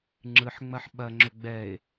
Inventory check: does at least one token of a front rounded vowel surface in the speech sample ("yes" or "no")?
yes